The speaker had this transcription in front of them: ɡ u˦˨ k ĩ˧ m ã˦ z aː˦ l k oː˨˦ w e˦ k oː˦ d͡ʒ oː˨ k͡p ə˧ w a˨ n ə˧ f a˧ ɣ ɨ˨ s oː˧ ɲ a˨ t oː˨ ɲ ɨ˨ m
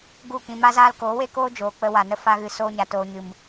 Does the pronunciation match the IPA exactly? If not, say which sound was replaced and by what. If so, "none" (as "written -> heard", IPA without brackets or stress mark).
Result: ã˦ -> a˦